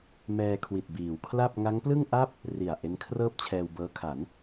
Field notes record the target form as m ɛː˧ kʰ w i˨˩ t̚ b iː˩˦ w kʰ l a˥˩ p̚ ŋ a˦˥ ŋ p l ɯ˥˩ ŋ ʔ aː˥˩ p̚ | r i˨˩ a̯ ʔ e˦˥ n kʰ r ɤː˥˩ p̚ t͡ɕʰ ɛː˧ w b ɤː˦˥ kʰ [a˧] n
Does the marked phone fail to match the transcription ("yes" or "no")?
yes